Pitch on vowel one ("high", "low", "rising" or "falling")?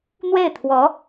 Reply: falling